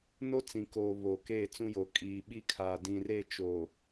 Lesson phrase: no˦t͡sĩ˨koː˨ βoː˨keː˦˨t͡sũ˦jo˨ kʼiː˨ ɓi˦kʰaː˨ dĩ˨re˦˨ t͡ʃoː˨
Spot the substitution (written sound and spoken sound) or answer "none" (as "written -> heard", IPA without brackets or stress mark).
none